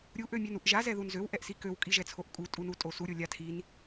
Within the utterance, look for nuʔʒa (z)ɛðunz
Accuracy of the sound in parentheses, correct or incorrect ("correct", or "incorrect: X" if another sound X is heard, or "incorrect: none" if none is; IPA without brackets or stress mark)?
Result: correct